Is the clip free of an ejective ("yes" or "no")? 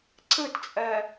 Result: no